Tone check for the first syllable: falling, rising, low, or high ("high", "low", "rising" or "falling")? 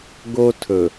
high